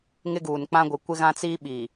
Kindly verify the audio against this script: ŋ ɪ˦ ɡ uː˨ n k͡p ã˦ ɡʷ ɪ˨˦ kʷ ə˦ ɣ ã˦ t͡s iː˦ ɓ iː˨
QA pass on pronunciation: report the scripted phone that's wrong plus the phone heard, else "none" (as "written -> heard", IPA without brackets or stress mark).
ə˦ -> ɪ˦